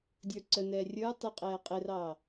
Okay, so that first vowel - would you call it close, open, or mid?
mid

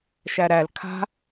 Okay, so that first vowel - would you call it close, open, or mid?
open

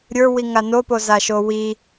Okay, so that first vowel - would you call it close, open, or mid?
mid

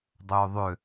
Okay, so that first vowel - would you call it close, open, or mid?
mid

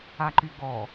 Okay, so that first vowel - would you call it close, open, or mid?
open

